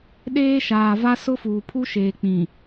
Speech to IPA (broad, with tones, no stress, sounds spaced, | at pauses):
ɗ eː˦ ʃ aː˨ v a˦ s ʊ˦ f uː˨ pʰ u˦ ʃ eː˨ k͡p ĩ˨